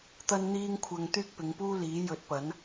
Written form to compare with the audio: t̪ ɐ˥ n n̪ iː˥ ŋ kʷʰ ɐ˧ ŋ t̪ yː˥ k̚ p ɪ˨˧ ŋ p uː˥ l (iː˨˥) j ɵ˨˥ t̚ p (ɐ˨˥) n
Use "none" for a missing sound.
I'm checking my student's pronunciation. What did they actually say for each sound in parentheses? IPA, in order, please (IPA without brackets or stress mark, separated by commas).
iː˨˥, ɐ˨˥